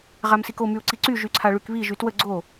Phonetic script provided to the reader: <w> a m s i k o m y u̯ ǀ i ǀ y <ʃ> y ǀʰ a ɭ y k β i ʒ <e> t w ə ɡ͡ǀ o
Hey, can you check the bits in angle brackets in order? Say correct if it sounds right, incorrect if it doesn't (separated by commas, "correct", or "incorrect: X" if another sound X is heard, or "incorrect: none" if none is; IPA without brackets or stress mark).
incorrect: ʁ, incorrect: ʒ, incorrect: y